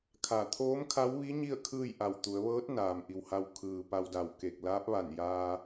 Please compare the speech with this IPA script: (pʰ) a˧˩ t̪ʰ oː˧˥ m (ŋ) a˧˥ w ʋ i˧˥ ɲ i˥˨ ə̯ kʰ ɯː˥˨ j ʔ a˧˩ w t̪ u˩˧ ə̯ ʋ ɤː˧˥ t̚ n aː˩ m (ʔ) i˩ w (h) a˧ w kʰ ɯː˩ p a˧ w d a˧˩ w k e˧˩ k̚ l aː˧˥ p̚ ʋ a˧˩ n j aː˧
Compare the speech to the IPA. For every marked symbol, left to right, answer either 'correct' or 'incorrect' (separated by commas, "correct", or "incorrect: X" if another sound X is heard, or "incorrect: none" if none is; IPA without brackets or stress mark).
incorrect: kʰ, incorrect: kʰ, correct, correct